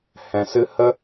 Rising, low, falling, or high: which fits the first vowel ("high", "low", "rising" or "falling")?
low